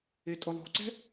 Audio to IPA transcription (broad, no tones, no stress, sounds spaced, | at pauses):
e tʼ ʊ lˠ o̤ ǀ ɛ̤